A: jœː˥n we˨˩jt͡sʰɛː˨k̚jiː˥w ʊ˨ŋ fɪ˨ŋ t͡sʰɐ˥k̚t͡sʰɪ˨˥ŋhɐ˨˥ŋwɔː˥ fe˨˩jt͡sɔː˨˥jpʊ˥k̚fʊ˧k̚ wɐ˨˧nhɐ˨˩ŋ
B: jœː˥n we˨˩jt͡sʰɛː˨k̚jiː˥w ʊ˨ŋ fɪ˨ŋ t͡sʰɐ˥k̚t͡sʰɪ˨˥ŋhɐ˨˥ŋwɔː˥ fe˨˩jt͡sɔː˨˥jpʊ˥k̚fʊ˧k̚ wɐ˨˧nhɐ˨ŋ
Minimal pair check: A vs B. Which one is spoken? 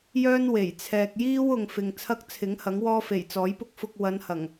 A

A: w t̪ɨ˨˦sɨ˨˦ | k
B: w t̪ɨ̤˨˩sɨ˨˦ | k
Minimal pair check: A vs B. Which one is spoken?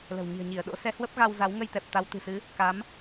B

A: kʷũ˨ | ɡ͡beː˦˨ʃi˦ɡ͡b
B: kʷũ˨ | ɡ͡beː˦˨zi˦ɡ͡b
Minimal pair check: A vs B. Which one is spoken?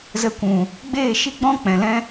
A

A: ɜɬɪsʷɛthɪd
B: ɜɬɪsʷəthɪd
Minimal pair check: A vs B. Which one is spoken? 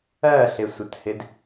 B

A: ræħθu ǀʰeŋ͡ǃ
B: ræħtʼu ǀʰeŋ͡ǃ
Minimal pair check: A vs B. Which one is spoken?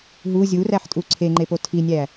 B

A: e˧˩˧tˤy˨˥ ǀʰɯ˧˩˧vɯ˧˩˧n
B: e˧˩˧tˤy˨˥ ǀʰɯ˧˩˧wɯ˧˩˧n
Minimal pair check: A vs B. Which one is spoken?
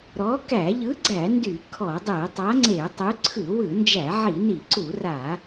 B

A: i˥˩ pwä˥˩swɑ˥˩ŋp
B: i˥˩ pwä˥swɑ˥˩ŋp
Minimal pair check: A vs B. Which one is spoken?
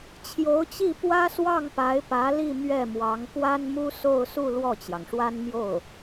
B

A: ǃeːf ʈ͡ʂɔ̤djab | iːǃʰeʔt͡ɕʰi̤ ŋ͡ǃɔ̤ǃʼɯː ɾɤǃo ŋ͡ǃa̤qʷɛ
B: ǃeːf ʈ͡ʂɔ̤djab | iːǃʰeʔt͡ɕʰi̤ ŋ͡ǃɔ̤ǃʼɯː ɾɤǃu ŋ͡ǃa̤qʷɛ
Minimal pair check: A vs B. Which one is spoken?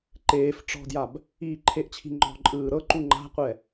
B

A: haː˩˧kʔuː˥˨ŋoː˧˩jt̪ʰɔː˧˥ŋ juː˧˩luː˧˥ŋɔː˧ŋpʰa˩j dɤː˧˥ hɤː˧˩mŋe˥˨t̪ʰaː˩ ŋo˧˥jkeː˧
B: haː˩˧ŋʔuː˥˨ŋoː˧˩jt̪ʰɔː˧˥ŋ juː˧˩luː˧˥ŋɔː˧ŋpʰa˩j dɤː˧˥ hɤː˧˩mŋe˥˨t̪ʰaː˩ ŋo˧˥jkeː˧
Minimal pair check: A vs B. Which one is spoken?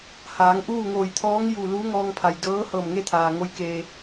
B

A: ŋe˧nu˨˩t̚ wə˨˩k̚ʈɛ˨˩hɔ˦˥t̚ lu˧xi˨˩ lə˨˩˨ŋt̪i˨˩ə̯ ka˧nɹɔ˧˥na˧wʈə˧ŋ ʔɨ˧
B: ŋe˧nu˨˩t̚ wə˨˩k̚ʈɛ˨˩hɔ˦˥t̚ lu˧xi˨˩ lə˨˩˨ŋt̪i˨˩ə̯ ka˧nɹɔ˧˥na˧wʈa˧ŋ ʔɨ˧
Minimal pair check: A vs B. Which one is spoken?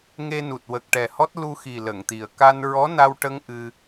A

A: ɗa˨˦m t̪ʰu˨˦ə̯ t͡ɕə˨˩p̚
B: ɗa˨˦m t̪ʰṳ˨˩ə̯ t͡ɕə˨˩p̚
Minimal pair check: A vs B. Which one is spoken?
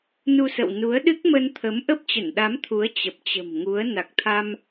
A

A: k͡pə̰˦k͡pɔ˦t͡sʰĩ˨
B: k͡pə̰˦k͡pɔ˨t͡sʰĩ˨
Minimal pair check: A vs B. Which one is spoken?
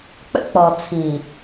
B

